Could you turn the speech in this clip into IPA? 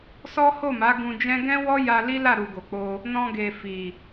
sɔ˦ho˦˨ma˨˦ ɡũ˧d͡ʒɛ̃˦ ɡɛ̃˦wɔ˦ ja˧ li˦la˦˨ɾu˨ ɡo˨k͡po˧ | nɔ̃˧ɡe˨ fi˨

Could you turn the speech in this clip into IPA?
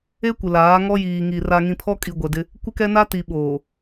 e˦kʷɪ˨ laː˨˦ŋɔ˦ jiː˨ŋi˨ ra˨ŋĩ˨ pʰɔ˦kʼi˨ɡʷɛ˨dɪ˦ | kʷɪ˦kɛ˦na˦ ti˨ɓoː˨

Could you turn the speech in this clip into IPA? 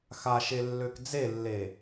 xaʃelːøk d͡zelːe

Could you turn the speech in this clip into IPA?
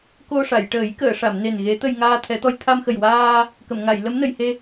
ko˧ʂa˨˩˨j ʈəː˨˩˦jkəː˨˩˨ʂa˨˩˨mne˨˩n ɣe˧˥t̪ə˧j ŋaː˧t̪ʰɛ˨˩˦t̪ɔ˧j t̪ʰa˧mxə˨˩jwaː˧ | kə˨˩˨mŋa˨˩˨jlə˧˥mnə˨˩˨j he˧

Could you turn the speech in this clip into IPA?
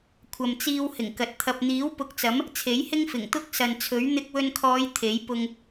kʷʰɐ˧mt͡siː˥w hɪ˨˩ŋkɐ˨t̚ t̪ʰɐ˨p̚n̪iː˨˥wpʊ˨˥k̚t͡sɐ˨˥m | t͡sʰe˨˥jhɪ˥ŋfɪ˨˩ŋ t̪ʊ˥k̚sɐ˨nt͡sʰɵ˨˥ɥ n̪ɪ˧k̚wɵ˧nkʰɔː˨˧j t̪ʰe˨˥j pʊ˧ŋ

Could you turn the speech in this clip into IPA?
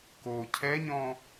ko cʰɛɲɔ̃

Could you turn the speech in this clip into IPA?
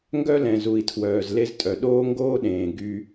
ŋɡœ˦lɛ̃˨zu˨i̯tʰwœː˨z le˦ztʼœ˨ ɗoː˦ŋɡoː˦ɗẽː˨ ɡy˦

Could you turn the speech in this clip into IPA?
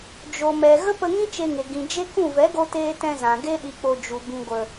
d͡ʒo˨mɛ˨ ɣə˦pə˧ŋĩ˦ t͡ʃe˧ŋe˨ ɡĩ˨ d͡ʒe˦kũ˦˨ vɛ˨˦ɡo˧teː˧ tɛ̃˧zã˨ ɡe˦ɗi˧k͡po˧ d͡ʒu˨ bĩ˨ɡʷə˨

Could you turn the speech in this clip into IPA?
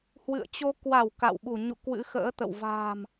hwɨ̰˧˨ə̯t͡ɕo˧ kwa˧˩w ka̰˧˨w ɓu˧˩ɲṵ˧˨ kwɨ̰˧˥xə̰ː˧˥t̪ə̰˧˨w va̤ː˨˩m

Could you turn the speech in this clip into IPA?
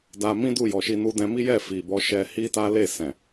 da˧ mĩ˦du˦˨jɔ˨ʃi˧ nu˧dɛ̃˧mi˦jɛ˦˨ fi˨bɔ˧ ʃɛ˧hi˦ta˦ le˦˨sɛ̃˨

